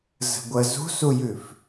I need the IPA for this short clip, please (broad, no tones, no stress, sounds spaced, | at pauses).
z ə̤ ɡʷ ə z ṳ s u j ʉ f